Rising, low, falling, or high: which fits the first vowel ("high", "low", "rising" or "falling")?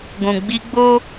low